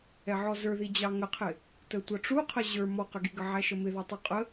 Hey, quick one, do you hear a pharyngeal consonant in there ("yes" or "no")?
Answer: yes